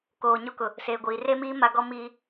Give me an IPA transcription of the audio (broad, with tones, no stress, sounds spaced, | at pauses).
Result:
k oː˨ ɲ o˦ k ʊ˨ | s eː˨ ɡʷ iː˨ r e˦ m iː˦ m a˦ ɡ ɔ˦ m iː˦